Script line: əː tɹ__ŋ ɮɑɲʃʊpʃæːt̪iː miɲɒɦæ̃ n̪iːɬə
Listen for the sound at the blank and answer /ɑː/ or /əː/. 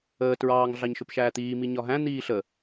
ɑː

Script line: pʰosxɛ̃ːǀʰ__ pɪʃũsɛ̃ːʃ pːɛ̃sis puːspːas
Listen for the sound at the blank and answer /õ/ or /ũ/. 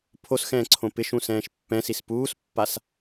õ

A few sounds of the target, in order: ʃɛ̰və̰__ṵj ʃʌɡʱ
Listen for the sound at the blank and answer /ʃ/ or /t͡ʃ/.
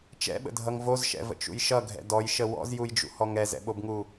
t͡ʃ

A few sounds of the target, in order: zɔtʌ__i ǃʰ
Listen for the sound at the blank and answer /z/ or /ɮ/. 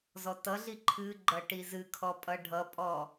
ɮ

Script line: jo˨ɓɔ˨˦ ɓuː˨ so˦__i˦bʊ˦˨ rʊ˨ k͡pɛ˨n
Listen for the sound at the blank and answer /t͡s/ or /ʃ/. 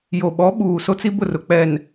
t͡s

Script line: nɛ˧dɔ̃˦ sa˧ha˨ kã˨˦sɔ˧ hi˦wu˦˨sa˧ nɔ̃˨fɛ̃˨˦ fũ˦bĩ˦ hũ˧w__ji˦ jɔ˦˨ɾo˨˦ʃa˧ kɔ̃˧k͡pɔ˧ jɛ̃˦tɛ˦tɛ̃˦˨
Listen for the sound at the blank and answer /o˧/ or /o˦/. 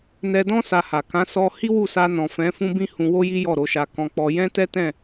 o˦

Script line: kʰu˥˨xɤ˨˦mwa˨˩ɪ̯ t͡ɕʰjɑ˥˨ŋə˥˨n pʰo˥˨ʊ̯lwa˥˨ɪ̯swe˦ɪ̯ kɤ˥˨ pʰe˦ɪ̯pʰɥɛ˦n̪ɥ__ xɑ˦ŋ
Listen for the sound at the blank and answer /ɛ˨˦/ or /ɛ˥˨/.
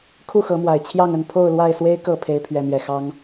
ɛ˥˨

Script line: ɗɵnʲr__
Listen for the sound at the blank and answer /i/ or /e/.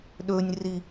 i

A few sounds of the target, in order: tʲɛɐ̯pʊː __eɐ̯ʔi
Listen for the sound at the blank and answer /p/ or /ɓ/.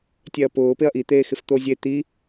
p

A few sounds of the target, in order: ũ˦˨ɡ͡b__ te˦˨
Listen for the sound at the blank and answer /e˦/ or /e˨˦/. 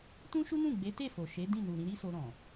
e˨˦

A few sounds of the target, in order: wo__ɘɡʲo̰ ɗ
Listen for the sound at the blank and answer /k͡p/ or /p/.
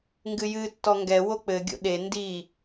k͡p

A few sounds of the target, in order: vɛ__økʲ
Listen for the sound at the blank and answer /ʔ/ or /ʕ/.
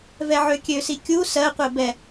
ʕ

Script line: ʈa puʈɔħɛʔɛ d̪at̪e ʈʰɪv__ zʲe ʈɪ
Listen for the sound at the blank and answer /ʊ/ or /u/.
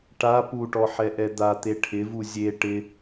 u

